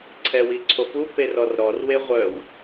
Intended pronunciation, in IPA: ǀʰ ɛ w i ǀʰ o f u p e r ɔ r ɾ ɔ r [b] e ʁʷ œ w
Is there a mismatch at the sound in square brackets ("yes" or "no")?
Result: yes